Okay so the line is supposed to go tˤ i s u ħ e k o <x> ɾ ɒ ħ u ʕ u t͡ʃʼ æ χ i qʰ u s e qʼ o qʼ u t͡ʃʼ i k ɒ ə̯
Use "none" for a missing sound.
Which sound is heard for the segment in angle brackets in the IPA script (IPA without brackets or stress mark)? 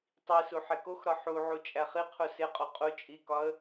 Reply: x